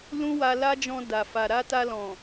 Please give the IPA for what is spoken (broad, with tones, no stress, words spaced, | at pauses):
lũ˦wa˧la˦d͡ʒɔ̃˧ da˨fa˨ ɾa˧ta˧ lɔ̃˨